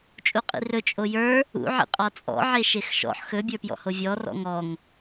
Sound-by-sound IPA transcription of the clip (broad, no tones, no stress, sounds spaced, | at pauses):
t͡ʃʼ u qʼ ḭ r ɵ t͡ʃʼ o j ə˞ | ṵ ʕ ḭ qʼ ɑ t͡sʼ ɔ̰ ʕ e ʃ e x ʃ ɔ̰ ħ x ɵ bʲ ə˞ p j ɔ̰ h o vʲ ɔ r ɔ̰ ŋ ɔ ŋ